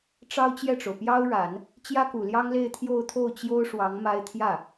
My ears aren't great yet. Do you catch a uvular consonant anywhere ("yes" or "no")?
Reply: no